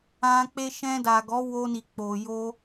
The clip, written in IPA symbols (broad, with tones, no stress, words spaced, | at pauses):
ã˧ k͡pe˧ʃɛ̃˧da˨ ɡɔ˨˦wo˧ni˨ k͡po˨jo˧